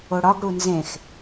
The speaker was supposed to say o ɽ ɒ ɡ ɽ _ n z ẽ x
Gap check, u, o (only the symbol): u